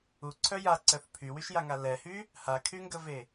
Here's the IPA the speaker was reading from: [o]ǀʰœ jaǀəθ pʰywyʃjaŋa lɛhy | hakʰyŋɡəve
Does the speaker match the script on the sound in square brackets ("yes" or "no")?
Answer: no